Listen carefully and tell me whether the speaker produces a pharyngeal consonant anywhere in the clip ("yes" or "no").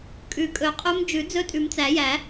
no